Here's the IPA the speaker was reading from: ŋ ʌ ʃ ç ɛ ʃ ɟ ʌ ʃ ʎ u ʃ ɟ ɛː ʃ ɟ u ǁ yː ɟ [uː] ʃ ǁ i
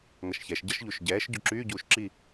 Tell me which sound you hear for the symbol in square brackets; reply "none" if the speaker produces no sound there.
uː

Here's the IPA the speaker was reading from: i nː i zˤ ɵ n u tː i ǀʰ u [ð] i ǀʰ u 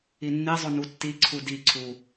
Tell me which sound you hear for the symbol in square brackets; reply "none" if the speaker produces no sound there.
d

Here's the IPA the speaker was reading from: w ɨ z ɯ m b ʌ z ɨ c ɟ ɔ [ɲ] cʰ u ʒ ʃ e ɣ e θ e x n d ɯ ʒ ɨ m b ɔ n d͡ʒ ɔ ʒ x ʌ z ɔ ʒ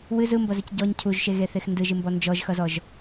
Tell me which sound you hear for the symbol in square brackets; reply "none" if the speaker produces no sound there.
ɲ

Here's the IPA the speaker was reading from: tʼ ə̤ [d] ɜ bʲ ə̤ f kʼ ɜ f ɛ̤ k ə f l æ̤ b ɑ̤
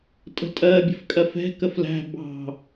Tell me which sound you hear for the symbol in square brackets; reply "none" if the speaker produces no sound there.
tʼ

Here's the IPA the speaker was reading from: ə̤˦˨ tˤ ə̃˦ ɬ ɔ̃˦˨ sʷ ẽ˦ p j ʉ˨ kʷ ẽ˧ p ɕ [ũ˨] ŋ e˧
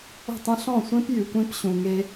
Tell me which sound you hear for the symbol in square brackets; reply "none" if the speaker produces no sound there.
ũ˨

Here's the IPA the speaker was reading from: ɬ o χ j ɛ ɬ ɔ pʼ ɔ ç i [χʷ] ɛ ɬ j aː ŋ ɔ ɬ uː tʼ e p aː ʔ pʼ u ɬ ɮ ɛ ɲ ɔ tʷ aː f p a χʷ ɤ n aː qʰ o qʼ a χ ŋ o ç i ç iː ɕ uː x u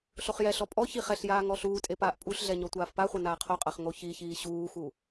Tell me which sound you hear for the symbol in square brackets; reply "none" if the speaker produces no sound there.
χ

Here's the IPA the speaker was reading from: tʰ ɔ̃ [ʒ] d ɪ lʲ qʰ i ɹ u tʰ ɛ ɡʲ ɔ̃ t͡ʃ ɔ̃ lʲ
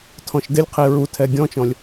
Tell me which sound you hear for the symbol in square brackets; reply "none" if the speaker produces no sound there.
ʃ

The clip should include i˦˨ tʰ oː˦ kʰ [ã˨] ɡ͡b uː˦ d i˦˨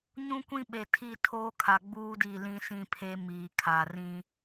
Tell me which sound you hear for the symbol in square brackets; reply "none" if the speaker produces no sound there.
a˨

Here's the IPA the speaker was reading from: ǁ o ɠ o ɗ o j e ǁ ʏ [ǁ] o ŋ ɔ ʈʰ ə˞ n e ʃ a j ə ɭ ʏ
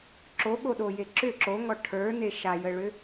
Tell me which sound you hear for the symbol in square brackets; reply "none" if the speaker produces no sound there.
ǁ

